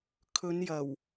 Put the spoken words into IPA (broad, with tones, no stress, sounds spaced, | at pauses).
kʰ ɵ˨˧ n j ɐ˨˩ w